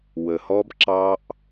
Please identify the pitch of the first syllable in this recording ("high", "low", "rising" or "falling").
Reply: low